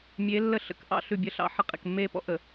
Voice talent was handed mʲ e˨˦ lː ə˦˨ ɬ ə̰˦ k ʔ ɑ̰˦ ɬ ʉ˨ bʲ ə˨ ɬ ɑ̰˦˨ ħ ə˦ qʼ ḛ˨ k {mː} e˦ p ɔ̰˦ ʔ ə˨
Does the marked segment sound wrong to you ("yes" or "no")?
no